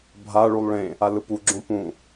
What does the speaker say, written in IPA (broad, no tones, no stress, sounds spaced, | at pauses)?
bʱ a ɭ u lˠ ɭ ẽ | a l ɯ p u ɡ͡ǁ õ p ũ